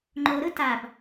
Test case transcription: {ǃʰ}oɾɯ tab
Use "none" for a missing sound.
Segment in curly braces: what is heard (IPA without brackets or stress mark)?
ŋ͡ǃ